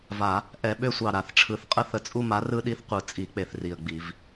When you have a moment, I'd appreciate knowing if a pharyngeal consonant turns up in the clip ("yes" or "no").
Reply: no